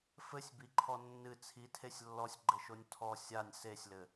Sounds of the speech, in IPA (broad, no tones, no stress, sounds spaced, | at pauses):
f ɘ sʲ b i ǃʰ ɔ nː ɨ t͡sʰ i tʰ e sʲ lː ɔ sʲ ɡ͡ǃ ɘ ʃ o nʲ tʰ ɔ sʲ a nʲ s e sʲ l ɘ